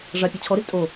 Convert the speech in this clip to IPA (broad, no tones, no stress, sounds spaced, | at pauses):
ʐ a pʲ ɔ t͡ɕʰ ɔ ɾ ɪ z tʼ o